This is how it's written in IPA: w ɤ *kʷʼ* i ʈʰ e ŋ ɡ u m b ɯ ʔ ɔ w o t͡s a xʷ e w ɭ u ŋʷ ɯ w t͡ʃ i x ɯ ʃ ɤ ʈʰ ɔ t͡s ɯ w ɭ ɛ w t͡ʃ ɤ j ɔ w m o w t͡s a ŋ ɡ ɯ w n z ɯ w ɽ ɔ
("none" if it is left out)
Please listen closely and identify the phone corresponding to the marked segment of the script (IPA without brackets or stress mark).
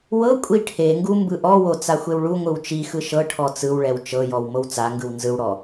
kʷʼ